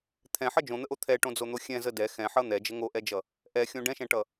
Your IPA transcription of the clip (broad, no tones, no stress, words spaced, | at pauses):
t̪ʰɛ̃ħʌ d͡ʒõn̪əʔo t̪ʰɛʈõd͡zon̪o xʲɛ̃zə dɛ xɛ̃ħʌ n̪ɛd͡ʒə ŋoʔɛd͡ʒʌ | ʔɛxʲõ ɖɛ̃ʃɛ̃ʈʌ